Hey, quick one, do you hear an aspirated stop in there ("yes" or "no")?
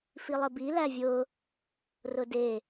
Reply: no